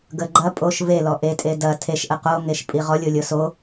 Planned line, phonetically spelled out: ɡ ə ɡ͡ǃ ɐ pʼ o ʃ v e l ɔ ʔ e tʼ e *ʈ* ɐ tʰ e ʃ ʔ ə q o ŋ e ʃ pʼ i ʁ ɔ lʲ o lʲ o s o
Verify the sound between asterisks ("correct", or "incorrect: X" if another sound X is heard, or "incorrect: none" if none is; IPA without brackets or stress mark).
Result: incorrect: d